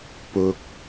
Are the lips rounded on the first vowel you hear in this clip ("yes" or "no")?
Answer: yes